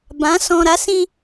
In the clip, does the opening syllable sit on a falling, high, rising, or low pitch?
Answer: rising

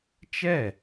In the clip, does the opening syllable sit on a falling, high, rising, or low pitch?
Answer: falling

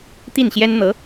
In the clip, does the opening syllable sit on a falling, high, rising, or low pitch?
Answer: falling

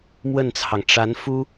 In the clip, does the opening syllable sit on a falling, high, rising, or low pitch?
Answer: falling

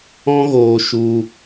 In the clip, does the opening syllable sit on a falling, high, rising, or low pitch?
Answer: high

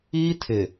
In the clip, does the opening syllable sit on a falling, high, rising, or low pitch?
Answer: high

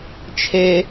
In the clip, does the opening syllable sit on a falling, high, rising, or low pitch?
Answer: high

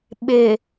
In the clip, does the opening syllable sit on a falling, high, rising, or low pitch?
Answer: low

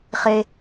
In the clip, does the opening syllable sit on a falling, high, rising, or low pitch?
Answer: high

